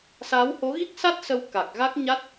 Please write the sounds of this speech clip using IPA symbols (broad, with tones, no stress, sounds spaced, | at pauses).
s aː˨˦ w h o˨˦ ɣ i˦˥ k̚ s a˦˥ t̚ s ə˧ w k a˨˩ k̚ ɣ a˦˥ k̚ ɲ a˦˥ t̚